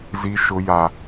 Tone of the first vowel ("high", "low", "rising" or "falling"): high